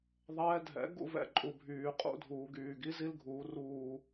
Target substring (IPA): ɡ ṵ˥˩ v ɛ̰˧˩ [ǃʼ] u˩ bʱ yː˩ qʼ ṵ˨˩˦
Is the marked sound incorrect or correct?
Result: correct